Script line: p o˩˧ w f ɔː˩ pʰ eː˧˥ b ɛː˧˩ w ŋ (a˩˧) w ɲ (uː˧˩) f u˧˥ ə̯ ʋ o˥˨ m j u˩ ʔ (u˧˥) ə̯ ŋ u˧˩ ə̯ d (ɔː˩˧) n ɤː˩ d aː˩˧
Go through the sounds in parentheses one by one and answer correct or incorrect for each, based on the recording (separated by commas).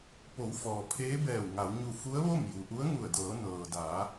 correct, incorrect, correct, incorrect